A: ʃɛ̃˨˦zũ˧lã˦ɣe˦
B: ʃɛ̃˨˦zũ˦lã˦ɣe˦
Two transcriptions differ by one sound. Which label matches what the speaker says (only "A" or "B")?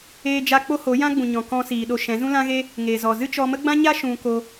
B